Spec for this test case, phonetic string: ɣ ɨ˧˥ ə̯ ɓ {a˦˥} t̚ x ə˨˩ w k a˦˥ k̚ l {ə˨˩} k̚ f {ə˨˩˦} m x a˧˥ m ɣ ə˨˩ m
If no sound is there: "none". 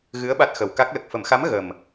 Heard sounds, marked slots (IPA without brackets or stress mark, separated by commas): a˦˥, ə˨˩, ə˨˩˦